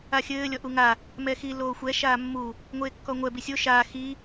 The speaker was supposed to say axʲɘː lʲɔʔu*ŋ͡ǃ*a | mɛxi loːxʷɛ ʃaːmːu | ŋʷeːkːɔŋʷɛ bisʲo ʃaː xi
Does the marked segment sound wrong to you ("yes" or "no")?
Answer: yes